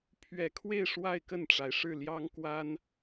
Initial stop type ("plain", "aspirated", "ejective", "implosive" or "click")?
aspirated